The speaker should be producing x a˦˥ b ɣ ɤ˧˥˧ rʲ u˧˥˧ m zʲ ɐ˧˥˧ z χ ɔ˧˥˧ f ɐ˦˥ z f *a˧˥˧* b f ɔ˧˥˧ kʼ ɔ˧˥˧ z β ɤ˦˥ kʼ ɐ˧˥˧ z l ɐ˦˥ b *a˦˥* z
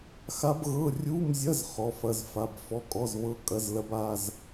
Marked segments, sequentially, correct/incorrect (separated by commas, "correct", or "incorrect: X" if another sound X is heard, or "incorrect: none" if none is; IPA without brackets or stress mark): correct, incorrect: a˧˥˧